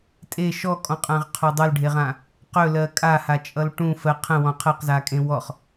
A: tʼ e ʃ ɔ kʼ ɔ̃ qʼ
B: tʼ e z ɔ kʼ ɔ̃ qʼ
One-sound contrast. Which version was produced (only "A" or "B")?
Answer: A